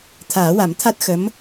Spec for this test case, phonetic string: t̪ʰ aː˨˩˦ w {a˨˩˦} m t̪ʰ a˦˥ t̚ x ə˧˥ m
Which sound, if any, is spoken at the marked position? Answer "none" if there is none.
a˨˩˦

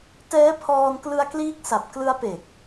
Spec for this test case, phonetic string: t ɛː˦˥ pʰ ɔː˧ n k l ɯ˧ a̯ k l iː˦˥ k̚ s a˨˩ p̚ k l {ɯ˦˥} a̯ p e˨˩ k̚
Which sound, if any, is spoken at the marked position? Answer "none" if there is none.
ɯ˦˥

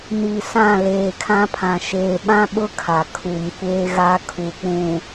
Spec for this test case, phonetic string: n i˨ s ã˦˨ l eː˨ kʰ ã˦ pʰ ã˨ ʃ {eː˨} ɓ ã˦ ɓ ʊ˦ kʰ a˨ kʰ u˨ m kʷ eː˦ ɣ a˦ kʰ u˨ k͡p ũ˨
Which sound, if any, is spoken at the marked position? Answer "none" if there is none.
eː˨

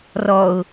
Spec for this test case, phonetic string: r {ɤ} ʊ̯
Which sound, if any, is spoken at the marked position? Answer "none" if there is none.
ɔ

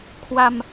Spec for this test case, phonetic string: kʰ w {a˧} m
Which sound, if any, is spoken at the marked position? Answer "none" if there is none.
a˧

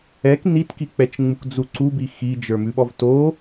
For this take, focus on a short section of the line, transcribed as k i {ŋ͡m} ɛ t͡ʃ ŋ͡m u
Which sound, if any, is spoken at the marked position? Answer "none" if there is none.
k͡p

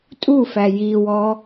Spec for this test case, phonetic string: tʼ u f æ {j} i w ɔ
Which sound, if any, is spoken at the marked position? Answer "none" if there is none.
j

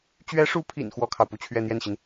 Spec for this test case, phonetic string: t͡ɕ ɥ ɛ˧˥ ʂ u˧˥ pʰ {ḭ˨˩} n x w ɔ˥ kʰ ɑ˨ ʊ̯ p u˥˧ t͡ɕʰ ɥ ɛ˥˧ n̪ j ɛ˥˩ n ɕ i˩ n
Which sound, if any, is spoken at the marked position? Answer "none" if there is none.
ḭ˨˩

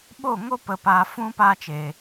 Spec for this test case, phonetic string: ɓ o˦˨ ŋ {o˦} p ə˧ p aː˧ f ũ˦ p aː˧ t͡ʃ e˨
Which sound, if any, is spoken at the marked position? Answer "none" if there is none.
o˦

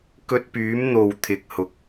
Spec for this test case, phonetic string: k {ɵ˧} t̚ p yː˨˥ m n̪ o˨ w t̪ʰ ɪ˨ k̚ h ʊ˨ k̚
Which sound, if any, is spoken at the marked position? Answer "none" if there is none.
ɵ˧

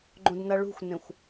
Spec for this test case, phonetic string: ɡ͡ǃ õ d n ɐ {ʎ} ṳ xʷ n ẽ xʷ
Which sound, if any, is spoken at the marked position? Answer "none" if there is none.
ɭ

